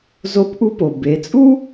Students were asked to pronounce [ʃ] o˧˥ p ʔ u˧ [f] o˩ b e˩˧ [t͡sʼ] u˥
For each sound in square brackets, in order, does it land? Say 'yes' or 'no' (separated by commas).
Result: no, no, yes